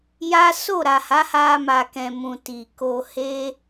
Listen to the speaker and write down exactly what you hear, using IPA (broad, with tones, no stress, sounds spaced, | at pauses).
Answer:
j a˦ s o˦˨ ɾ a˨ h a˨˦ h a˧ m a˨ k ɛ̃˨ m ũ˨ t i˨ k o˧ h e˦